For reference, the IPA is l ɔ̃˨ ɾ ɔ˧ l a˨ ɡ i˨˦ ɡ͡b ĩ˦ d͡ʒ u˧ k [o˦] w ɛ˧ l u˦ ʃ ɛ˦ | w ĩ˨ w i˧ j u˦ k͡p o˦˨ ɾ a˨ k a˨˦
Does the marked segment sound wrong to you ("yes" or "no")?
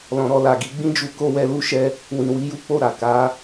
no